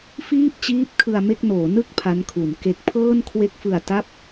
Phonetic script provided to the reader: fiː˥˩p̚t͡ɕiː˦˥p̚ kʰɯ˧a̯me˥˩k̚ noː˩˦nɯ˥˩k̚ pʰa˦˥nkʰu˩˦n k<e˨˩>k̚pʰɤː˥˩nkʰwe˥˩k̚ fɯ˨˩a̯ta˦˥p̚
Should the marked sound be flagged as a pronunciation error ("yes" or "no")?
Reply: no